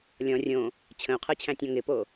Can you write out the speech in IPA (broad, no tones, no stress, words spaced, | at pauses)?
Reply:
lʲɔ̃ rʲõ | t͡ɕʰə̃u̯qʰɤt͡ɕʰæ̃tʲɔ̃ ŋɪpo